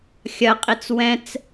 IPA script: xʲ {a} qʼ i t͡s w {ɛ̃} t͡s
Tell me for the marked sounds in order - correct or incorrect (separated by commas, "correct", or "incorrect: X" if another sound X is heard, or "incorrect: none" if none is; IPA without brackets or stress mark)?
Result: incorrect: ɐ, correct